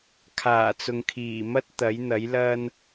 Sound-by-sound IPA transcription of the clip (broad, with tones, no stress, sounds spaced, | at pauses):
kʰ aː˨˩ t͡s ʊ˨ ŋ kʰ iː˨˩ m ɐ˥ t̚ t̪ ɐ˨˥ j n̪ ɐ˨˥ j l ɐ˥ n